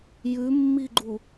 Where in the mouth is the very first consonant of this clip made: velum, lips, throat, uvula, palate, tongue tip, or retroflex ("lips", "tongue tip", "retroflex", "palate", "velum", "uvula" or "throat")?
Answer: palate